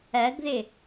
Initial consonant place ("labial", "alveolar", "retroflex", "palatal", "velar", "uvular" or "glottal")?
velar